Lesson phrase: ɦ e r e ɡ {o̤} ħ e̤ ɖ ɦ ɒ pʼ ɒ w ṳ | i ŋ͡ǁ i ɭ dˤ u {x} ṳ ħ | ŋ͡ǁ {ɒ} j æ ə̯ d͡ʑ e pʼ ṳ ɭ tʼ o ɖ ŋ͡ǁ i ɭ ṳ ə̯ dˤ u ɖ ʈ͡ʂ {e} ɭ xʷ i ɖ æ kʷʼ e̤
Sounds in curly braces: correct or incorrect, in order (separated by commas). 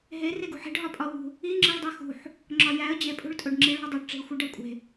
incorrect, correct, correct, incorrect